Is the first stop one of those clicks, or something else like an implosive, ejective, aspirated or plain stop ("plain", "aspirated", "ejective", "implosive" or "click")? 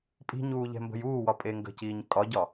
ejective